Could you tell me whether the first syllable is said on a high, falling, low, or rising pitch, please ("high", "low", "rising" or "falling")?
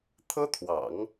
high